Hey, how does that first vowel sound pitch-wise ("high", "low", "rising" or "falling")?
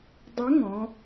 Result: rising